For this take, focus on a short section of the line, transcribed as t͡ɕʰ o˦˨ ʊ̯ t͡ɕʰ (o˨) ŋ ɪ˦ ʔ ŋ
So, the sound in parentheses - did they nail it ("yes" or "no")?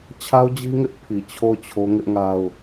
no